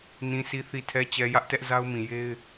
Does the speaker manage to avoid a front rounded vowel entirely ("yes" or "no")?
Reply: yes